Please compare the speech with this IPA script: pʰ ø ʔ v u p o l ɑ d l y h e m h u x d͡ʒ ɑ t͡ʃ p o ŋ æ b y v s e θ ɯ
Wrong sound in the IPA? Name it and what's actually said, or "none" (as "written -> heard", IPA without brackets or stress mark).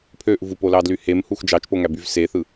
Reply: none